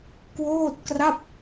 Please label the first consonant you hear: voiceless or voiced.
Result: voiceless